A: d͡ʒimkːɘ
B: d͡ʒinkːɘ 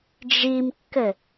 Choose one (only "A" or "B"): A